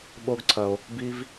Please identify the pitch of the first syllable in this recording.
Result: high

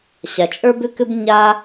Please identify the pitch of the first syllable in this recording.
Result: low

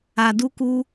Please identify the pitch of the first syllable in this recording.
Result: low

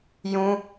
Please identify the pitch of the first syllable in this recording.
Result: high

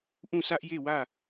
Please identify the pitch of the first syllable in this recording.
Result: falling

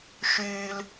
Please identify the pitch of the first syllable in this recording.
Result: high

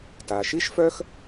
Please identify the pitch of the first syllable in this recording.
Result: low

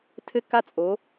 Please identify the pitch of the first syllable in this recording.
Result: high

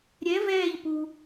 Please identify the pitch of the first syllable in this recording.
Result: rising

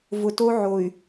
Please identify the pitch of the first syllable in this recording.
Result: low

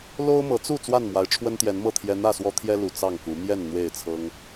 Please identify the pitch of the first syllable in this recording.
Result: high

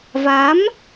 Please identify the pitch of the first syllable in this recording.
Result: rising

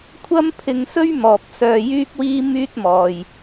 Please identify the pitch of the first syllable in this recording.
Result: high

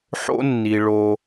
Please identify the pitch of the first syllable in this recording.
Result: high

